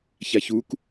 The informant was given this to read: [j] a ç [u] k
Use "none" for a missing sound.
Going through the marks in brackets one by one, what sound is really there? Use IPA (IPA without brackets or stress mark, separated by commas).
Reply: ç, u